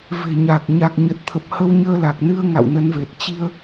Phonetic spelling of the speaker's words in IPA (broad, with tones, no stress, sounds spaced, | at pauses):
v e̤˨˩ ɲ a˨˩ k̚ ɲ a˨˩ k̚ ɲ ə˨˩ t̚ t̪ʰ ə˨˩ p̚ h ə˧ w ɲ əː˧ l a˨˩ k̚ n ɨ˧ ə̯ ŋ a̰˧˨ w n ə˨˦ n v e˨˩ t̚ t͡ɕ i˧ ə̯